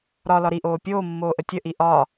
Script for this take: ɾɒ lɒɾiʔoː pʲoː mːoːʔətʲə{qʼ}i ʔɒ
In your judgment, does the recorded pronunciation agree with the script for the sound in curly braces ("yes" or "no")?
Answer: no